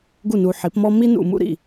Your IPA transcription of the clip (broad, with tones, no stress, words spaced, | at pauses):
ɡu˥˩nu˨ħi˩˥pmɔ˥ mi˥nṵ˥˩mṵ˥ɾḭ˥˩